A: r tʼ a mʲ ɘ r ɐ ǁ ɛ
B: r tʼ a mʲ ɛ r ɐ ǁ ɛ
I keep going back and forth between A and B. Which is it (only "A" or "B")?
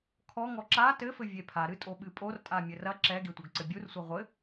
A